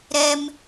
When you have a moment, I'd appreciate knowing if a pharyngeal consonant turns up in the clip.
no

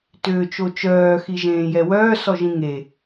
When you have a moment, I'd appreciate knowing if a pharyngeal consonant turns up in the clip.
no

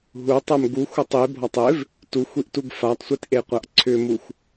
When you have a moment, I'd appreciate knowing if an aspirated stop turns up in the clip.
yes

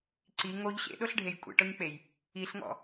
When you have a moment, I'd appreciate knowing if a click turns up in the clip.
yes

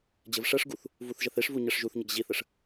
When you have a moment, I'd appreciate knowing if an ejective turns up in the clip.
no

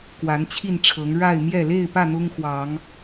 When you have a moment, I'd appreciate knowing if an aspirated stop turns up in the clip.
yes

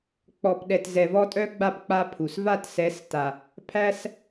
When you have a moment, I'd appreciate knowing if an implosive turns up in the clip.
yes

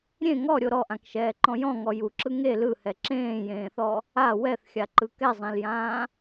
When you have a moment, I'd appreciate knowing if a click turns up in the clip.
yes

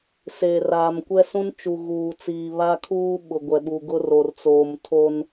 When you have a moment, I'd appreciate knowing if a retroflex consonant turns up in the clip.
no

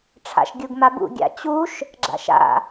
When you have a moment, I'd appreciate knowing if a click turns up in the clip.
yes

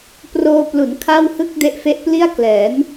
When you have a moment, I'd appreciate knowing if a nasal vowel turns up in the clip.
no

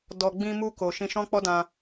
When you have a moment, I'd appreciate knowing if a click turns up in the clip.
no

